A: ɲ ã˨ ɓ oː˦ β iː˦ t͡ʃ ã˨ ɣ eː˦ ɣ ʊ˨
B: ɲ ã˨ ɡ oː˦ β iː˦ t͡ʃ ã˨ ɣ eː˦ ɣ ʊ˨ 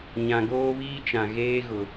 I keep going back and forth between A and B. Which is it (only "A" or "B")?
B